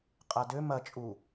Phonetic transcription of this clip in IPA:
qʼadø mɐt͡ʃʼu

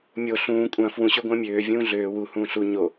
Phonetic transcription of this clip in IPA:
mʲo ɬũː kʷʼɐ̃ fwũ ɕøɡʷə̃ːmʲøː vʲũːɮøː wu hũːɬu ɲo

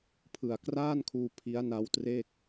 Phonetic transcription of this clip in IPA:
pʰɯ˨˩a̯kraː˥˩nkʰuː˧ pʰi˦˥a̯na˦˥wtre˥˩k̚

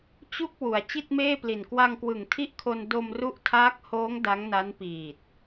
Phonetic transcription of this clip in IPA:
t͡ɕu˥˩k̚ wu˩˦a̯ t͡ɕi˥˩t̚meː˥˩pli˨˩n kwa˧ŋkwɯ˨˩ŋ tʰi˥˩ʔkʰo˧n do˧mru˦˥ʔtʰaː˦˥k̚hoː˦˥ŋ da˦˥ŋna˦˥npiː˨˩t̚

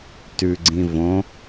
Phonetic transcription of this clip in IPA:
tʉɡ͡ǀĩ võ

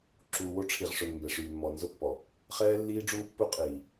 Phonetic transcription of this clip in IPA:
ǁuː˨wo˦ʈ͡ʂʰi˨ʁʂʊ˨n mbɛ˨ʂyː˨mːɔ˨ nzʊ˦pːɔ˨ | χɛː˦lːiː˦ɖ͡ʐuː˦pːu˦ qʼiː˨

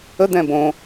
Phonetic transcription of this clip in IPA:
ə d̪ɛ̃bõ

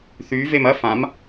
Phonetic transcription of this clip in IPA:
θy vemɐ fãm

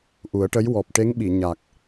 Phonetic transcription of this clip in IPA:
ʔu˨˩˦ə̯ʈə˧˥j wɔ˨˩p̚ʈe˧˥ŋɓi˨˩˨ ɲa˨˩k̚

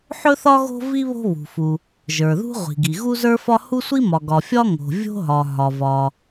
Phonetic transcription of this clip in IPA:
ħɵ˥θɒ˥ ɣo̤˥vi˥ βo̤˥βṳ˩fu˩ | ʒə˞˩ðṳ˥ ʁʷi̤˩ɡi˩ ɣu˥zə˞˥fɒ˥ hu˥sʷi˥ mɒ˩ɡɒ˩ fʲɒ˥ ŋo̤˩ vʲo̤˥ɦɒ˩ ɦɒ˩vɒ˩

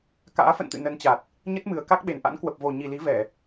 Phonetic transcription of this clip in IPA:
ka̰ː˧˥fə̰˧˨nt̪ɨ̰˧˨ nə˨˦nt͡ɕa˨˩t̚ | ɲə˦˥t̚mɨ˨˩ə̯ ka˦˥k̚ɓe˨˩nʔa̰˧˥n kwə˨˩p̚vo˨˩ ɲi˨˩li˨˦vɛ˧˩˨

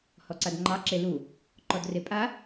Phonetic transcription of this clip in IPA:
hɔǀadŋ͡ǃɑ ǁelu | ǃɔdrepʼa

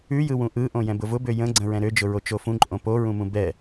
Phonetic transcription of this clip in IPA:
ʉjɯwũ ʔɯʔõ jɛ̃bʊvʊbø jə̃ɡ͡ǀə̃ ɹɛ̃ɾød͡ʒʊ ɹot͡ʃofũ ǃʼõpoɹũmũ bɛ

